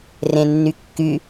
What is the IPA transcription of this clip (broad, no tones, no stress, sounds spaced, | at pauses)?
r ẽ nː y kː y